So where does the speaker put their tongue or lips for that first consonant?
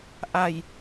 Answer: throat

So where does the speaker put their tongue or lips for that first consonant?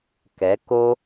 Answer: velum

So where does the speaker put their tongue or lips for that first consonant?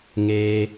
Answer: velum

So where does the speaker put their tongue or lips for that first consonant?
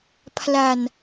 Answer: lips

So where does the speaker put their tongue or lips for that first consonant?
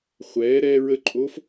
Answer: uvula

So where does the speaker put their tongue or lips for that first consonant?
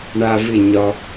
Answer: retroflex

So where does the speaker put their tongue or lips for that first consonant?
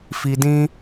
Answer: lips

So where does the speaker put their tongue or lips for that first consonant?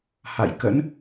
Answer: throat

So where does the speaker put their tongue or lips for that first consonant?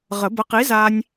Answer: uvula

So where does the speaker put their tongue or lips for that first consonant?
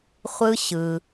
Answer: uvula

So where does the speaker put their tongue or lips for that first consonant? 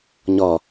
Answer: palate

